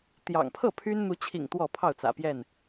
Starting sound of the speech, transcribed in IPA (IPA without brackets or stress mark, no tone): t̪